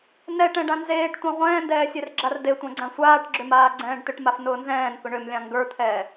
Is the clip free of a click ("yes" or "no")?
no